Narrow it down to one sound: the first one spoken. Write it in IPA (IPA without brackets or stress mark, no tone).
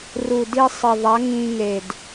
r